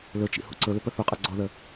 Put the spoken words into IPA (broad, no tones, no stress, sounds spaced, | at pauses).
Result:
l ɵ t͡ʃ ḭ h ṵ ǀ ɵ l ʏ p ə θ u qʼ ɤ ɡ͡ǀ ɔ ð ə